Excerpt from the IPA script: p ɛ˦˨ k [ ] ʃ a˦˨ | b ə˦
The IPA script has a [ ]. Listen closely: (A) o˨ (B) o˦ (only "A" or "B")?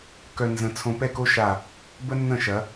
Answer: B